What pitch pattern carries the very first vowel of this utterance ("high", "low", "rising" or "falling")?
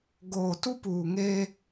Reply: low